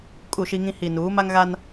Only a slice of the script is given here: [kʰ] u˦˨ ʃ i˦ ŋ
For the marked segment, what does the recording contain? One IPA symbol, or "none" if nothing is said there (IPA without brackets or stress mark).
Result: kʼ